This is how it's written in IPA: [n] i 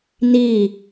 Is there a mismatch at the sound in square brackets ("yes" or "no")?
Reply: no